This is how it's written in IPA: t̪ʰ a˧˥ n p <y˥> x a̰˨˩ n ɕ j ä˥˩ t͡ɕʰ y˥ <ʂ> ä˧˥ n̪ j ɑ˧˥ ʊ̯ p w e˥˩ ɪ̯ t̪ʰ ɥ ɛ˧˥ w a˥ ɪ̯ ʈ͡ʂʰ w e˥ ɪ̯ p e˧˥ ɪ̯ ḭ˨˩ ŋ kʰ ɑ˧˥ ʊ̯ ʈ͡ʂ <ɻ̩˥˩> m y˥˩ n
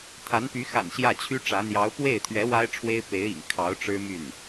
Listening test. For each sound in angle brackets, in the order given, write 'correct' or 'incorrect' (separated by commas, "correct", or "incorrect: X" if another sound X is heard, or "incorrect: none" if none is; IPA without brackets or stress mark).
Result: incorrect: y˧˥, incorrect: ʈ͡ʂ, incorrect: ɻ̩˥